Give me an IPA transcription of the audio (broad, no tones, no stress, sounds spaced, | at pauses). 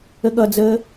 ə ɠ ʌ d͡z əː